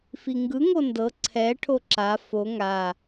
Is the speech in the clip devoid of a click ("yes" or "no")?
no